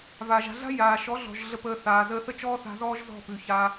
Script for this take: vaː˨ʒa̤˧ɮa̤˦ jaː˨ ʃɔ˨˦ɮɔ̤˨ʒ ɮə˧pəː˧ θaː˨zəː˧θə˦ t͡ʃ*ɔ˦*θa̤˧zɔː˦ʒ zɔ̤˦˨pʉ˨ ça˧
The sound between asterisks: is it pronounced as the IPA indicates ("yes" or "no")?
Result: no